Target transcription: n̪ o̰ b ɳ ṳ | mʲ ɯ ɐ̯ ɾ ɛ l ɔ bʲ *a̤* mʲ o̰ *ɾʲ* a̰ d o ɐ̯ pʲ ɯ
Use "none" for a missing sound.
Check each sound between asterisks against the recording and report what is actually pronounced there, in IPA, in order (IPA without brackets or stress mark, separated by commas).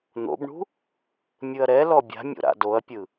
a̤, ɾ